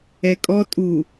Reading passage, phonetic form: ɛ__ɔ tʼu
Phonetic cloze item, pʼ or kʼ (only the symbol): kʼ